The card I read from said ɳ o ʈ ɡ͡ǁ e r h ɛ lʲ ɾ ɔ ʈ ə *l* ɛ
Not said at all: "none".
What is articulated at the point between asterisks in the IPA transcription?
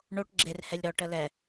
l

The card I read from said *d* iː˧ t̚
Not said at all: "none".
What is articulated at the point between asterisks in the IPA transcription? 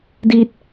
d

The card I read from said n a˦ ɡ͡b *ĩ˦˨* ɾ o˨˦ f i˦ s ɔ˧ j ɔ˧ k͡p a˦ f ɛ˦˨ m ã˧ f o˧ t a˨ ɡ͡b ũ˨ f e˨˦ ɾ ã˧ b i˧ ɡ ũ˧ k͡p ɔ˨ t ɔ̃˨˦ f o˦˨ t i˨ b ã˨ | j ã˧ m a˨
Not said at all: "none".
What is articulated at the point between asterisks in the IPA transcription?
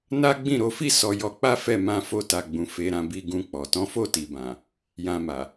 ĩ˦˨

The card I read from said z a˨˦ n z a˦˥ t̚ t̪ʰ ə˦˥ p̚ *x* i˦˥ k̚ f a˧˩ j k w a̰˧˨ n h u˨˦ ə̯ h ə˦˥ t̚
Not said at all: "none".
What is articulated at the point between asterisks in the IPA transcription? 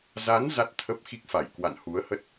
x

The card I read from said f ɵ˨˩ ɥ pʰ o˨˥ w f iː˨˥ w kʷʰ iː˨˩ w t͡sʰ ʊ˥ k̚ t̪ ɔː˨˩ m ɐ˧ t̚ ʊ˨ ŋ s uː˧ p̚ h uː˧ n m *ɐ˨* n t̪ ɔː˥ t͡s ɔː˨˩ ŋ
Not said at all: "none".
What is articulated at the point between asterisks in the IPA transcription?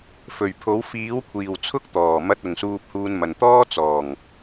ɐ˨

